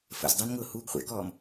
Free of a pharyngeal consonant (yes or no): yes